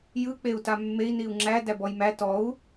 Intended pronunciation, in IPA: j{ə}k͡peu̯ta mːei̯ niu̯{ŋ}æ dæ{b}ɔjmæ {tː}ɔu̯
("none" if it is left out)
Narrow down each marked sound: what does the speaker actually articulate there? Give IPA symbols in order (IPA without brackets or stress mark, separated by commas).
ɯ, ŋ͡ǁ, b, t